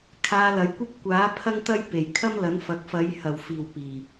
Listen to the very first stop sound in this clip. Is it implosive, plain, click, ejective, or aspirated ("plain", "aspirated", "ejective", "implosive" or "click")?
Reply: aspirated